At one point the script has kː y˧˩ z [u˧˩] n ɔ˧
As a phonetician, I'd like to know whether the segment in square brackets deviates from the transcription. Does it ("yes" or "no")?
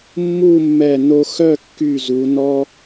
yes